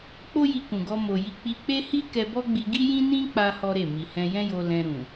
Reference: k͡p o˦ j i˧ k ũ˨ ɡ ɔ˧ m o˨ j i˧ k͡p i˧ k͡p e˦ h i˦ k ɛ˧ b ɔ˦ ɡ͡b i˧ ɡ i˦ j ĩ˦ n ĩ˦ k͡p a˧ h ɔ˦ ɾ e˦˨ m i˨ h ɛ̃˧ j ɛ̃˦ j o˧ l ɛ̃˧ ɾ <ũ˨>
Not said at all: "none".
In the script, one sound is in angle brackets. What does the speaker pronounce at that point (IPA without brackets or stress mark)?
ũ˨